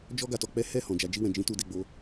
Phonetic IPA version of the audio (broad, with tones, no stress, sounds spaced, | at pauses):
d͡ʒ ɔ˦ ɡ a˧ t ɔ˧ k͡p ɛ˦ h ɛ˦˨ h ɔ̃˨ d͡ʒ a˧ d͡ʒ i˧ w ɛ̃˨ d͡ʒ ĩ˨˦ t u˧ d e˧ ɡ͡b o˧